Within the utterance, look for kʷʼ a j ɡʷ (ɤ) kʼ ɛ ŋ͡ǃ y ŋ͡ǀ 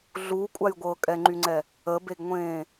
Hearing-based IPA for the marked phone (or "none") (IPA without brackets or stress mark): ɤ